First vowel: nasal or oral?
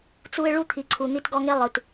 oral